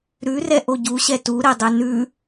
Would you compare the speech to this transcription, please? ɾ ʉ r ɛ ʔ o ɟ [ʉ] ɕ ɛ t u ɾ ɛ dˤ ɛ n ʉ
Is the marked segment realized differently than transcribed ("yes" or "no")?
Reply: yes